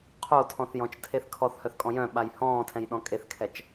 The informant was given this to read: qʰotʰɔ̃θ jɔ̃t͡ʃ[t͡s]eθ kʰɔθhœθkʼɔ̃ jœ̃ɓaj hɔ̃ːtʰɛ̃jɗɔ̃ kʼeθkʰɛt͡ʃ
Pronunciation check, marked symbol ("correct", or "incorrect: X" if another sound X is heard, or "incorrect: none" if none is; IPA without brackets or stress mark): incorrect: tʰ